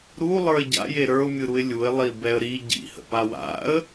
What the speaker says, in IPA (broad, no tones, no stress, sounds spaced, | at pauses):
ɾ u lˠ ə˞ ɪ̯ ɟ a̰ j e ɾ ə˞ ʊ̯ mʲ ɯ ɾ u ɪ̯ lʲ u ɪ̯ lˠ i b ɛ ə̯ ɾ i ɟ ḭ h ə̰ p a w a̰ ə̯